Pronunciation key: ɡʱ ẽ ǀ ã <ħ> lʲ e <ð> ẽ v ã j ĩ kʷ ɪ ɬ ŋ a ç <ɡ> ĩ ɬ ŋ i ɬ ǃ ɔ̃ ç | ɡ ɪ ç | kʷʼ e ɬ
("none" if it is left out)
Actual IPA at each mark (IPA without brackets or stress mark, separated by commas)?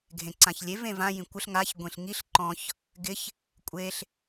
ç, v, ɡʷ